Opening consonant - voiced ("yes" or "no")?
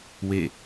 yes